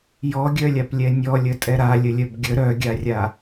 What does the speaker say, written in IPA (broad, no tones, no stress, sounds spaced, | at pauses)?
j ɔ ɡʲ œ lʲ a p lʲ ɛ nʲ ɔ lʲ ə tʼ ɛ ɾ a lʲ ə lʲ œ b ɡʲ ə ɾ œ ɡʲ a rʲ a